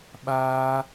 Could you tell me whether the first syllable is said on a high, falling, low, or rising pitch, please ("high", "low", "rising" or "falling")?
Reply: high